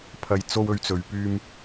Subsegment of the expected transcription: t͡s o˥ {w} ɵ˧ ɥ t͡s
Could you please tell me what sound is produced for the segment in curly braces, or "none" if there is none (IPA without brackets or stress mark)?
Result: w